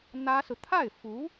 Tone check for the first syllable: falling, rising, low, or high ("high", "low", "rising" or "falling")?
high